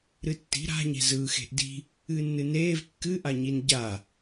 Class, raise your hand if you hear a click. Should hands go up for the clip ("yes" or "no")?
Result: no